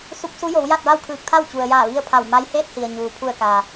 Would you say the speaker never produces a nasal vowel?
yes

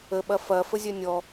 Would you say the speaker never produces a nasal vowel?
yes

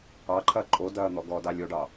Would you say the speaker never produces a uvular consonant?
yes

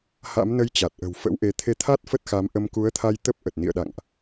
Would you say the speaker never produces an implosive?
no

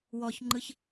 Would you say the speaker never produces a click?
no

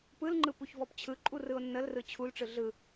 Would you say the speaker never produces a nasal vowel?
yes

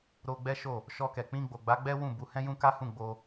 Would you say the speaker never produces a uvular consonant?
yes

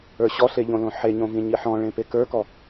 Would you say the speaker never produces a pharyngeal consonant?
no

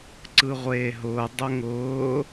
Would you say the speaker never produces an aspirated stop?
yes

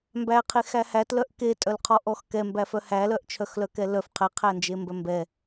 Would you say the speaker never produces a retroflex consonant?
yes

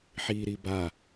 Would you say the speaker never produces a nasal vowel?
yes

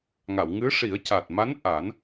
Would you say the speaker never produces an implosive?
yes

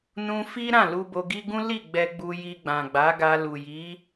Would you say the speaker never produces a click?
yes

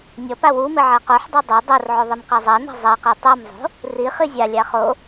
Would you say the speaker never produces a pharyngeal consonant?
no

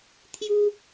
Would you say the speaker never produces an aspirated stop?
no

